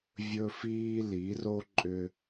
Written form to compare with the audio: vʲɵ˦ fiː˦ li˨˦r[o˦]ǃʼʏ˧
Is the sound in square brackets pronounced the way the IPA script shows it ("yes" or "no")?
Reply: yes